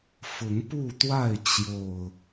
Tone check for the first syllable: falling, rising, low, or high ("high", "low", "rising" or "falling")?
rising